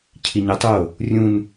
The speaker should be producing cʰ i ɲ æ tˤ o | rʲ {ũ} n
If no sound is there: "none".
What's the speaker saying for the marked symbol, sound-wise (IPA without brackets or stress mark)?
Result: ũ